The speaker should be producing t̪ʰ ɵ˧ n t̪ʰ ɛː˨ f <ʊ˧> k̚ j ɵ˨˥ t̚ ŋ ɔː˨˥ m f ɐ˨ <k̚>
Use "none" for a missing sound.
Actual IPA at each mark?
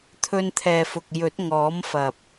ʊ˨, p̚

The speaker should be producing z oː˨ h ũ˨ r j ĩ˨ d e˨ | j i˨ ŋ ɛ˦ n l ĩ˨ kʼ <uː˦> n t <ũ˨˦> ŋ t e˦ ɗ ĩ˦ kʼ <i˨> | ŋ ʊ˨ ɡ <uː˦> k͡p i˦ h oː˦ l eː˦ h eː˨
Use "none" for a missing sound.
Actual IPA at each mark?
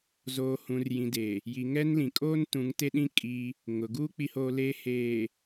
oː˦, ũ˨˦, i˦, uː˦

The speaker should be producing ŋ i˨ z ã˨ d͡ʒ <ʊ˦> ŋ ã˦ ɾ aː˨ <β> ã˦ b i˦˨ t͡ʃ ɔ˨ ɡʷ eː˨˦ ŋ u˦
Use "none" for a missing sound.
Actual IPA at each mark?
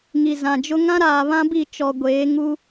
ʊ˦, β

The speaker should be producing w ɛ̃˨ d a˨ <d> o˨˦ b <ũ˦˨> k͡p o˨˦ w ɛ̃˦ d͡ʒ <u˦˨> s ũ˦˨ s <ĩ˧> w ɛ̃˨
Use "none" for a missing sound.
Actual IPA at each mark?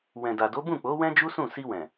d, ũ˦˨, u˦, i˧

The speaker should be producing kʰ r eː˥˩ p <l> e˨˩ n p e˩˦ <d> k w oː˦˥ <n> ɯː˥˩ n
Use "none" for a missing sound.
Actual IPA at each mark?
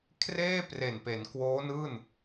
r, n, n

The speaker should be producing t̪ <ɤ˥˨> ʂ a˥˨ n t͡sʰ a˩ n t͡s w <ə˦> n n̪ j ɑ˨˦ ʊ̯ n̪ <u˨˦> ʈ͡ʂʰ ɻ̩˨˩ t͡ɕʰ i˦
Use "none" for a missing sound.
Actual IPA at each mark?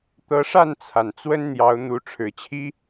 ɤ˨˦, ə˦, u˨˦

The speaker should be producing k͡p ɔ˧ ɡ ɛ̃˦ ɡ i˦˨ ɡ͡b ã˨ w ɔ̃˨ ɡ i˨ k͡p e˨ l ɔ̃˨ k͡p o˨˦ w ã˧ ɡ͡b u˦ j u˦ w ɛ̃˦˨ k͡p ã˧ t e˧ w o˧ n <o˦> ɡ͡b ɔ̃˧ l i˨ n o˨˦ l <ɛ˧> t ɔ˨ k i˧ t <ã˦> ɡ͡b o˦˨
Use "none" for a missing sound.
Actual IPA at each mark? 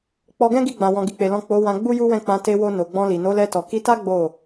o˨, ɛ˧, a˦

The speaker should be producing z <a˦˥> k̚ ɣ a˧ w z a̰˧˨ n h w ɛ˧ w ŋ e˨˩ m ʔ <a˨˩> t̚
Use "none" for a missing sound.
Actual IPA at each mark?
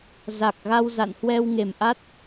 a˨˩, a˦˥

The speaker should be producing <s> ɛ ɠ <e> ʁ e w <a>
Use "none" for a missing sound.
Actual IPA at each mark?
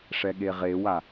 ʂ, e, a

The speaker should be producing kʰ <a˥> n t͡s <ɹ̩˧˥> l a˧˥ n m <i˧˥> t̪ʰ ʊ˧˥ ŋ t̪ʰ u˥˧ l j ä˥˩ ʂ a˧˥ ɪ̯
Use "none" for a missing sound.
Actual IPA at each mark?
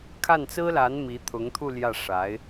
a˥˩, ɹ̩˥, i˧˥

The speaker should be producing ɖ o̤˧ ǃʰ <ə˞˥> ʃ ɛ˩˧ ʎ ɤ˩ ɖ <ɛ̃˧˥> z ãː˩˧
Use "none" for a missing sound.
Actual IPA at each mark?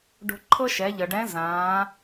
ɤ˥, ɛ̃˧˥

